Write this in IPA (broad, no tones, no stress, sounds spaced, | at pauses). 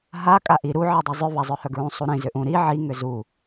ɦ a kʼ a ʔ i ɾ u ʕ i dˤ u zˤ ʏ v a zˤ œ h œ ɡ ɹ ũ sˤ u ɾ ĩ z ʏ ʔ ũ ɾ i ʕ i ŋ ʏ z u